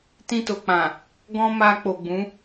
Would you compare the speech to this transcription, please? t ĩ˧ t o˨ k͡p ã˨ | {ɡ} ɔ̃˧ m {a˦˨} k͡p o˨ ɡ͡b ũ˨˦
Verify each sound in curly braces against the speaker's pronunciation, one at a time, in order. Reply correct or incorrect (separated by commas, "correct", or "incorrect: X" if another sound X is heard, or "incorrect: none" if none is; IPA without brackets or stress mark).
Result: correct, incorrect: a˧